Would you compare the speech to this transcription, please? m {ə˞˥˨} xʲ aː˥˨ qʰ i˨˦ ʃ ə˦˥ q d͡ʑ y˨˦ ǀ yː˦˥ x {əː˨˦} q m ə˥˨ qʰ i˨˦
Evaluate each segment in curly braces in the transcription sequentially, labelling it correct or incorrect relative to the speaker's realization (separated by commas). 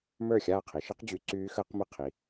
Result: correct, incorrect